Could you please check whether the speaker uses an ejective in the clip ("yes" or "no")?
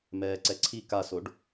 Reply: no